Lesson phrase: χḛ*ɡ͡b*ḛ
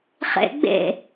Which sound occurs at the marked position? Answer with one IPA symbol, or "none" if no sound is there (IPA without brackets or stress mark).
ɡ͡b